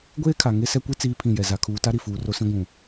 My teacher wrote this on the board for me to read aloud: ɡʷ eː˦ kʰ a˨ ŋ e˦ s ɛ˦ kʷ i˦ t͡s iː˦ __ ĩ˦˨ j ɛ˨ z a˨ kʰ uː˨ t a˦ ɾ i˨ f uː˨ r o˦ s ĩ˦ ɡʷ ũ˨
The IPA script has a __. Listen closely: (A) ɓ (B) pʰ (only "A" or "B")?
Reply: B